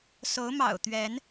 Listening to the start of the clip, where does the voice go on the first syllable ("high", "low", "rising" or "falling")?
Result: rising